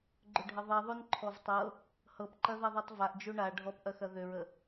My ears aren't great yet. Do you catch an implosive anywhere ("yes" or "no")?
no